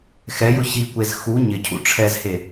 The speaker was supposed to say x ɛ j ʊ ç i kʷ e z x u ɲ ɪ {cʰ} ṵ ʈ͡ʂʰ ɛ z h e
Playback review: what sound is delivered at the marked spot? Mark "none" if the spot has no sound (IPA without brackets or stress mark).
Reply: cʰ